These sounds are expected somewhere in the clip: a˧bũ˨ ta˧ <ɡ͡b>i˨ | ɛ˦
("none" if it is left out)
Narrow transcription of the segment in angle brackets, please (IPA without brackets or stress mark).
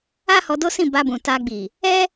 ɡ͡b